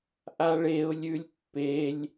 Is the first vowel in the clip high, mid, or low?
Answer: low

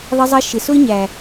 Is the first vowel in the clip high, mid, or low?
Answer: high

